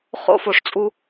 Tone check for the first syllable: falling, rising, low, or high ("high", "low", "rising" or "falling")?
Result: high